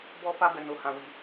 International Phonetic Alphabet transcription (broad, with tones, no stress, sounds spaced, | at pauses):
b ɔ˦ f a˦ b ɛ˧ n o˧ h ã˧ w i˧